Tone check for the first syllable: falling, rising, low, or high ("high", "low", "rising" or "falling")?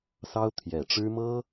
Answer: high